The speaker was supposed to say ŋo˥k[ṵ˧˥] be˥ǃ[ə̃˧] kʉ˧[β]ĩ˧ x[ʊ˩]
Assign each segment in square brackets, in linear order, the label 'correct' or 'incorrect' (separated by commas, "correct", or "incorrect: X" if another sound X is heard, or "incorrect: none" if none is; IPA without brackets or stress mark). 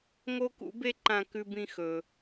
correct, incorrect: ã˧, incorrect: b, incorrect: ɵ˩